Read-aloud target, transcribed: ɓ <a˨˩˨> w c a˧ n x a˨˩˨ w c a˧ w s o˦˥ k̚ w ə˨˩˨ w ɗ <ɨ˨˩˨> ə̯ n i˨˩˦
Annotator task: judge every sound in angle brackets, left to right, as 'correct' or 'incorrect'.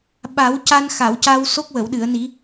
incorrect, correct

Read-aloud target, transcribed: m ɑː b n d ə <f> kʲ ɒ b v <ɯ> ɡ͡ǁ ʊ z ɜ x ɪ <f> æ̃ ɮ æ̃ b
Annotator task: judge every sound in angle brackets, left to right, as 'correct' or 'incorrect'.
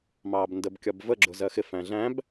incorrect, incorrect, correct

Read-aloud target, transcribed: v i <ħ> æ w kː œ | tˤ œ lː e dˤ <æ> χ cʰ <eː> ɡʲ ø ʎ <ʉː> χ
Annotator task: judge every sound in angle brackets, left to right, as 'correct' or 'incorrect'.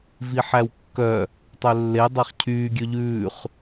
correct, correct, incorrect, correct

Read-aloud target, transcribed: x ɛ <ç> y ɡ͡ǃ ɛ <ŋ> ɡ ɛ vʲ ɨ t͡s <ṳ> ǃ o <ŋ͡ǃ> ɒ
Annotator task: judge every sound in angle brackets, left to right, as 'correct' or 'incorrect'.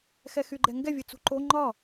incorrect, correct, correct, correct

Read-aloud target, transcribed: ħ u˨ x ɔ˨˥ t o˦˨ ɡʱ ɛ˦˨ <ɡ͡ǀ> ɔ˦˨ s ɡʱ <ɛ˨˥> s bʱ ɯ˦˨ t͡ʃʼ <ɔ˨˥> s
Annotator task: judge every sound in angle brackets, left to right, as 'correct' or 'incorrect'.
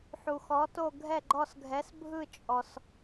incorrect, correct, incorrect

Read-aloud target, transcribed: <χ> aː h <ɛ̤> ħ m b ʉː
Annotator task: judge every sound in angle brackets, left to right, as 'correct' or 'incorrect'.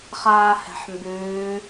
correct, correct

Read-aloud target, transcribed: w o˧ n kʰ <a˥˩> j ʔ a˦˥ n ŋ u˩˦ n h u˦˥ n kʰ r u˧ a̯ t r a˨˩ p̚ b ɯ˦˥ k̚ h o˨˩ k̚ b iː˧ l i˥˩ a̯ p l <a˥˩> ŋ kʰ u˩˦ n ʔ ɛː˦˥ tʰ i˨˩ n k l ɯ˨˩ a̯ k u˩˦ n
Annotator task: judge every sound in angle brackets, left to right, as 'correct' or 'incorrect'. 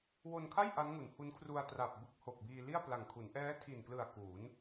correct, incorrect

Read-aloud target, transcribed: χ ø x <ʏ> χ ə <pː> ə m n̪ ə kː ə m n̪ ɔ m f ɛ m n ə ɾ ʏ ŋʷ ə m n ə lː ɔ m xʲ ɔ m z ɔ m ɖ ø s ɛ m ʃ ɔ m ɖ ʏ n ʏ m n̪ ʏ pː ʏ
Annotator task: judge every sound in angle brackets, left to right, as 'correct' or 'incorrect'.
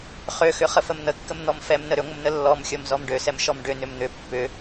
correct, incorrect

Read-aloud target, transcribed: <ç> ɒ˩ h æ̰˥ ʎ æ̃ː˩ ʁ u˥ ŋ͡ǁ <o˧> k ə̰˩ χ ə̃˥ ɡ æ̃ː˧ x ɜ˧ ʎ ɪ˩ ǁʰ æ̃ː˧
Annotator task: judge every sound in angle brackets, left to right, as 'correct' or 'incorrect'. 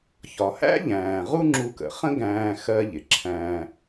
correct, incorrect

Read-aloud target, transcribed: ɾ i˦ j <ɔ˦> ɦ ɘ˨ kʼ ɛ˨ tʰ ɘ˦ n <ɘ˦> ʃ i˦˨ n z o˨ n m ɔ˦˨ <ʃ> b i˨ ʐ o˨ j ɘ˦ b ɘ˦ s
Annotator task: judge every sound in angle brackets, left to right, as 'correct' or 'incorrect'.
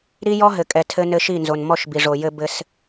correct, correct, correct

